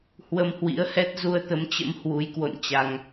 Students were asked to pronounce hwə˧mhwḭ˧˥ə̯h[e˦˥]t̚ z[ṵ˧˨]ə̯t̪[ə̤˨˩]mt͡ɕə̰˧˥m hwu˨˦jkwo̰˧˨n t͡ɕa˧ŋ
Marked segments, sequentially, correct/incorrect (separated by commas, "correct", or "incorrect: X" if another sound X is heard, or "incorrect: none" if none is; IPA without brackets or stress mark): incorrect: ɛ˦˥, incorrect: u˧, incorrect: ə˨˦